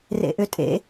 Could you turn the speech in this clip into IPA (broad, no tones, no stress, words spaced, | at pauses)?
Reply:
rḛʔʏtʼḛ